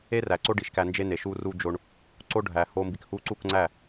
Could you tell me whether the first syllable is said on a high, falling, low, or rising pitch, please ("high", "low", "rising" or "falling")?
high